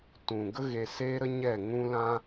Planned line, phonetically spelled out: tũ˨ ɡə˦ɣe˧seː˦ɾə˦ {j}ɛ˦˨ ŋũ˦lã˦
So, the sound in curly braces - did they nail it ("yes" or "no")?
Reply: no